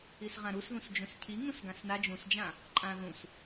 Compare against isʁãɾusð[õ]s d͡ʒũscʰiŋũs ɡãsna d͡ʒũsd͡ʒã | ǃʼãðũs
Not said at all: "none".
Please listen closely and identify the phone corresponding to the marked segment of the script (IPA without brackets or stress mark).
ũ